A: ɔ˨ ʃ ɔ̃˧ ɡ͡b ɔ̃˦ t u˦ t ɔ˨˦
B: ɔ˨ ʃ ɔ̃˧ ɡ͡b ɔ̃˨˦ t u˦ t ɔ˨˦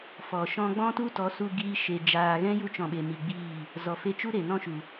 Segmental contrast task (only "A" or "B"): A